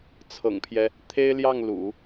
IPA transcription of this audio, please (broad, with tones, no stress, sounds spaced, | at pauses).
t͡sʰ ɤ̰˨˩ ŋ pʰ j ɛ˦ | t̪ʰ e˥ ɪ̯ l j ɑ˥˩ ŋ l ṵ˨˩˦